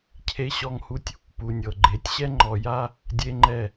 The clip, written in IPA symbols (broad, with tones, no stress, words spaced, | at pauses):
cʰe˦ɕɔ˦ŋhu˦tʲ | pu˨nʲɤ˨ ɡ͡ǃe˨˦tʲɕɛ˦ ŋ͡ǃɔ˨ja˦ | dʲe˦ŋ͡ǃɛ˦˨